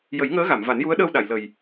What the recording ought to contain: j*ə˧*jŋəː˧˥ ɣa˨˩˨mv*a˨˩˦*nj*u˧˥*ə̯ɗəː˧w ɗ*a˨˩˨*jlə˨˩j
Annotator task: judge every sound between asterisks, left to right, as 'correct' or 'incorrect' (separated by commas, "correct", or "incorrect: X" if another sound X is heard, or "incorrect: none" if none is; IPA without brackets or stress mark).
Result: incorrect: ə˨˩˦, correct, correct, correct